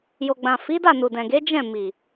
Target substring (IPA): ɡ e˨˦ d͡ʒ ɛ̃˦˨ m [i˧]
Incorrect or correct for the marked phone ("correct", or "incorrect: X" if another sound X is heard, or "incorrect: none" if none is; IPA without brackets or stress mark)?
incorrect: i˨